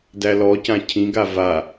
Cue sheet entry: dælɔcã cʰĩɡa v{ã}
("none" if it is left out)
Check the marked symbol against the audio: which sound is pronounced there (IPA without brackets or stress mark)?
a